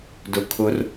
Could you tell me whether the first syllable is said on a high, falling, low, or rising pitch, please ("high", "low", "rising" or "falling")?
low